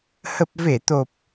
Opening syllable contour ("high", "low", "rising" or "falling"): low